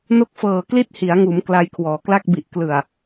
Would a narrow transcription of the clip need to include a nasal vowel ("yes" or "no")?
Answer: no